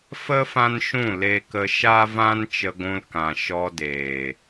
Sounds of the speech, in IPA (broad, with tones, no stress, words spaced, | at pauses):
fə˦ fã˦nʃũ˦˨le˧kə˧ ʃa˦vã˦n t͡ʃə˧ɡʷũ˧lkã˨ ʃɔ˧deː˨